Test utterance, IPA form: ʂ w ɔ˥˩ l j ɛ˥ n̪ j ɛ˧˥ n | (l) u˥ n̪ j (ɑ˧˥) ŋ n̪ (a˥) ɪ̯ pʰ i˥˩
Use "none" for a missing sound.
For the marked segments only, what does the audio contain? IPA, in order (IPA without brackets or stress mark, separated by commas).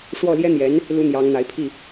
l, ɑ˧˥, a˧˥